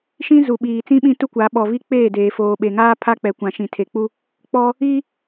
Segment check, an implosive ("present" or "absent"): present